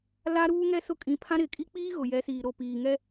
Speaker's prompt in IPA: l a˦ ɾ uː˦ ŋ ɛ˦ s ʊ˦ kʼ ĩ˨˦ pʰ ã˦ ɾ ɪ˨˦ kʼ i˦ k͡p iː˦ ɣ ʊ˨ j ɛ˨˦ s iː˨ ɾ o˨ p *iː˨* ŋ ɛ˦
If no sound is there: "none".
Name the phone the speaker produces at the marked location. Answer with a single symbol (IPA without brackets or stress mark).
iː˨